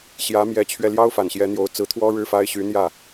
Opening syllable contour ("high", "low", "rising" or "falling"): rising